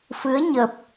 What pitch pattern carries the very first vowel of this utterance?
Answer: rising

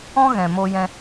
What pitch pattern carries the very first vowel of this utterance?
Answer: high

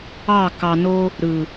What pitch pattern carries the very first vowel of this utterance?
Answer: falling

